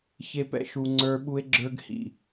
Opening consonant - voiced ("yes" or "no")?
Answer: no